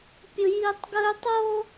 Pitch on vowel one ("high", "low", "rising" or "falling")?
high